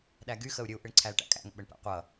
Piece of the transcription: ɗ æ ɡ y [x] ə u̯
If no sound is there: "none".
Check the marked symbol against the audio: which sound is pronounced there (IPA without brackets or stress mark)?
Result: x